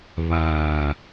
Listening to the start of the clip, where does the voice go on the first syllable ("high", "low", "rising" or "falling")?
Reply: low